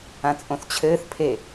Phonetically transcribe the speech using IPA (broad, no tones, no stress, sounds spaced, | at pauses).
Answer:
ã t͡sʼ õ θ t͡ɕʰ ɘː θ pʰ e